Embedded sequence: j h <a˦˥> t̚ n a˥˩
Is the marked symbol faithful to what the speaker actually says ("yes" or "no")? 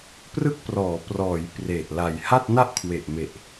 no